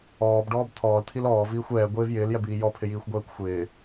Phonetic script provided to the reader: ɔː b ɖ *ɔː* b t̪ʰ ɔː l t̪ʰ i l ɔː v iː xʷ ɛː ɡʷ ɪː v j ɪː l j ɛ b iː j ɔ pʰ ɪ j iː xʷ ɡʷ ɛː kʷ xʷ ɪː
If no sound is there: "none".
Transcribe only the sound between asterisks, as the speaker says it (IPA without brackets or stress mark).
ɔː